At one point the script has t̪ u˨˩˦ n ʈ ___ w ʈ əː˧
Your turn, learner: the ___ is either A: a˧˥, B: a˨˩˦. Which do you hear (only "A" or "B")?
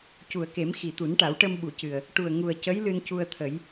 B